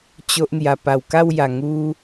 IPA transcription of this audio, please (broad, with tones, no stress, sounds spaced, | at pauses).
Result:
t͡ɕ o˦ ʔ n̪ j a˧ p a˨˩ w k a˥˧ w j a˨˩ ŋ u˦